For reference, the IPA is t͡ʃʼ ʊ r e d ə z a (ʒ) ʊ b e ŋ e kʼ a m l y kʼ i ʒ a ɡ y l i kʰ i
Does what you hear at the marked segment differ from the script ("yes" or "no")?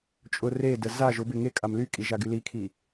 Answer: no